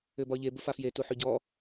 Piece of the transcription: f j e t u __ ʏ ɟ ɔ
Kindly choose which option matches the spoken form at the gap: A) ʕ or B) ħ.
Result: B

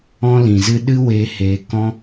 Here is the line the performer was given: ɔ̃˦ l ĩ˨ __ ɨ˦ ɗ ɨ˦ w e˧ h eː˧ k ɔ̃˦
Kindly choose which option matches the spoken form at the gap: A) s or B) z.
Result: B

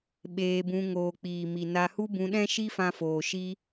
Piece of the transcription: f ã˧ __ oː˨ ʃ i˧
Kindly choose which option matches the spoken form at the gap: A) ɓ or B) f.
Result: B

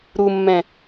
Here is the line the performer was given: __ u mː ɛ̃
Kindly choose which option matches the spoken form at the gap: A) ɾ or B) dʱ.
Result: A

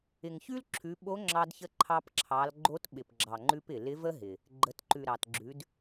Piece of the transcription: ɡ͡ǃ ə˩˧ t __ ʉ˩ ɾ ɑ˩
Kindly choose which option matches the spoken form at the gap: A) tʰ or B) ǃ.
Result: B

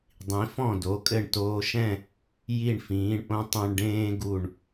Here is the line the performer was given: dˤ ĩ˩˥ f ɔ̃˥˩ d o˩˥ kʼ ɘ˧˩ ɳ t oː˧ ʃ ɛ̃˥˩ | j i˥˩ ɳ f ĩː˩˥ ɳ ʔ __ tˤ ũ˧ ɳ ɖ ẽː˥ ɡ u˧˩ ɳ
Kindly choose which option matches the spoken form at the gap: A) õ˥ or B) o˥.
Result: A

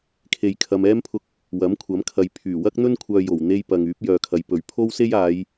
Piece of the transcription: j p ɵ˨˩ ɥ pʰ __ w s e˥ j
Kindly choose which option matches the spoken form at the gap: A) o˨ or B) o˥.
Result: B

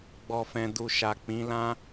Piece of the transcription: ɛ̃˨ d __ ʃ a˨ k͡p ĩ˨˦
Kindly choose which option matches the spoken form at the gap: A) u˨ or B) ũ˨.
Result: A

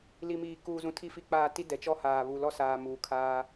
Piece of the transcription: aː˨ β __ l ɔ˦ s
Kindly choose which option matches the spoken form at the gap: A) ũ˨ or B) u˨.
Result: B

